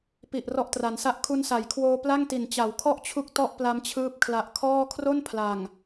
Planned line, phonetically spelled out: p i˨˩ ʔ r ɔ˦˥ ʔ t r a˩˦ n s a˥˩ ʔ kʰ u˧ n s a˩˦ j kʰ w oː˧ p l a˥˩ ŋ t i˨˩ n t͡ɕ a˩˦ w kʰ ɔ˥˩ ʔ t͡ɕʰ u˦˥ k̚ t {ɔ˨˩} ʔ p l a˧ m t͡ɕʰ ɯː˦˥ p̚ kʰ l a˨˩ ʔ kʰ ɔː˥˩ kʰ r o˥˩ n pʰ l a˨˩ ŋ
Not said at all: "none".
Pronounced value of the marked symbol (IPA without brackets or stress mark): ɔ˥˩